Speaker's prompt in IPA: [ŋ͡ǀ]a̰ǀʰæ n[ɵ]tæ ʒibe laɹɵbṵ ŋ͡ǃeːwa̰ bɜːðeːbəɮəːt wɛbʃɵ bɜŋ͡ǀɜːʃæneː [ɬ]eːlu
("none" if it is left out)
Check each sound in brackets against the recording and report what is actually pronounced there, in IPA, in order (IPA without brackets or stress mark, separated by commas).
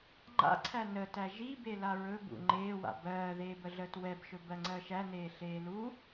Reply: ŋ͡ǃ, ə, ɬ